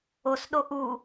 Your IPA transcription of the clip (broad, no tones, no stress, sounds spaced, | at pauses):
o s ɗ o ʔ u